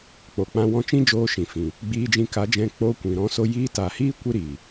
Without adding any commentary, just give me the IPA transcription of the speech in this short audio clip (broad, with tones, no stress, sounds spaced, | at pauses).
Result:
k͡p o˨ k͡p ã˧ w ɔ̃˧ t͡ʃ ĩ˦ d͡ʒ oː˧ ʃ ĩ˨ f ĩ˨ | ɡ͡b iː˧ d͡ʒ ĩ˧ k a˨˦ d͡ʒ ɛ̃˧ k͡p oː˧ kʷ ĩ˨ ɾ ɔ̃˦ s o˦ j iː˧ t a˨ h iː˦ kʷ i˦ ɾ i˨